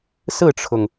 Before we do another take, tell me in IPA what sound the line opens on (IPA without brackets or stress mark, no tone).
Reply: s